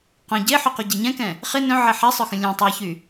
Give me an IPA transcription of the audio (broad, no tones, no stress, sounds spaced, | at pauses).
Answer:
q œ̃ ɟ e ħ y q y ɟ ɛ ɲ ɛ̃ k ɛ̃ | χ ɪ n œ̃ ʕ ɛ ħ ɛ sˤ œ x ə̃ lʲ ɛ̃ tˤ ɛ ç y